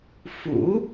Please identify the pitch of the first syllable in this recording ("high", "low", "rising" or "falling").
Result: rising